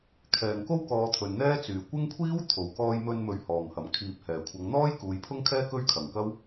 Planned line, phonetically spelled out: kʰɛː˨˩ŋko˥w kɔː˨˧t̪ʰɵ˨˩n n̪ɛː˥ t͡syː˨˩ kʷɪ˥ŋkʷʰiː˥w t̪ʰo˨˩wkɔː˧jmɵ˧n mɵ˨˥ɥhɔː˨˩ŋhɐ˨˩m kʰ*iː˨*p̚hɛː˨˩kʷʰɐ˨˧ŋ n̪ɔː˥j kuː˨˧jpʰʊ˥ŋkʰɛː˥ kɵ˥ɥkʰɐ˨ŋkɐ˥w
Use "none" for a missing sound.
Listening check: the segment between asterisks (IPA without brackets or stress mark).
iː˨